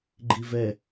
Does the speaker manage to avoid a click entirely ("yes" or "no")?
no